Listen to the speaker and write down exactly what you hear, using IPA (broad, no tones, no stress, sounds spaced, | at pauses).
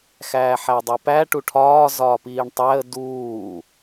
x æː ħ æ dˤ e p æ ʈ u ʈʰ ɒː z ɒː p iː ɳ tˤ æ ə̯ d uː